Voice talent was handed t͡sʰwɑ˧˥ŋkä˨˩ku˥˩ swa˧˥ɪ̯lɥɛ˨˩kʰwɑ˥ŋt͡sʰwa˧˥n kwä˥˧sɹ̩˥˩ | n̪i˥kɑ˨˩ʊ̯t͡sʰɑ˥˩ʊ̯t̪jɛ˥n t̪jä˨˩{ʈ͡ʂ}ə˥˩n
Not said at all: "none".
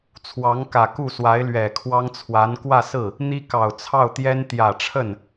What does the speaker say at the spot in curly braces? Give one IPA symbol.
ʈ͡ʂʰ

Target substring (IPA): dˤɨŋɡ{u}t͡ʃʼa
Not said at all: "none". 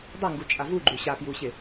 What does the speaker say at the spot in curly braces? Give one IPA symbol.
u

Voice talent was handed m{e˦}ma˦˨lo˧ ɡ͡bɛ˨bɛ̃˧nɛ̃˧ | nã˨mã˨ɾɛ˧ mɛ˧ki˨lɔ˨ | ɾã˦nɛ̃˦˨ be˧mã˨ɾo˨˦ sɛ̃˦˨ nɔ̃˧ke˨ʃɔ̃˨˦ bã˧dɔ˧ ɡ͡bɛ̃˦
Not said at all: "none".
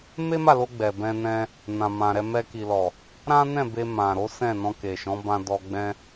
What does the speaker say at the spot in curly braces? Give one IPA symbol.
e˦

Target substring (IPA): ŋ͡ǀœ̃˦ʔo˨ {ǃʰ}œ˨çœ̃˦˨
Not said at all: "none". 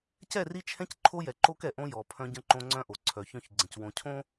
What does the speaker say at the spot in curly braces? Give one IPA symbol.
ǀʰ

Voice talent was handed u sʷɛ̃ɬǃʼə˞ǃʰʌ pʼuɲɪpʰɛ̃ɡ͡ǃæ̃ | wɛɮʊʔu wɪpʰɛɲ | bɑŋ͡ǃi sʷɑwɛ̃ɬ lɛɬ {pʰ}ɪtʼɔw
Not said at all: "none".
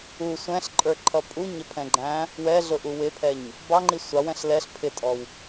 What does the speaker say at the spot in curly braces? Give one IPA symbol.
pʰ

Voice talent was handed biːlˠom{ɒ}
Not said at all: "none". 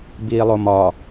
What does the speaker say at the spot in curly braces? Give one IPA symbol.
ɒ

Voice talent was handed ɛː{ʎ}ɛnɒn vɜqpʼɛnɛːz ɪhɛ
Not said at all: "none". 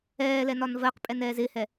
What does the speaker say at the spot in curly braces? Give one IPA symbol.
l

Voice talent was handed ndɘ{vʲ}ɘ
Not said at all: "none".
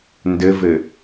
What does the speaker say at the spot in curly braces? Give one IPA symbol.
v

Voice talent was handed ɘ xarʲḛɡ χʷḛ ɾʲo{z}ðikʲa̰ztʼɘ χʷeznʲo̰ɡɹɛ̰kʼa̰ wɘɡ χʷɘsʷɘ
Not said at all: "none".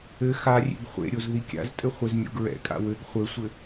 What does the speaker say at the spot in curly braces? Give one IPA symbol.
z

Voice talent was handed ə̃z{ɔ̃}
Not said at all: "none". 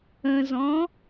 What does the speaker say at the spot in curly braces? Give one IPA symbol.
ɔ̃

